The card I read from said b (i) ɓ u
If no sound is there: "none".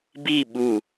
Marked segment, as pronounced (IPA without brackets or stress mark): i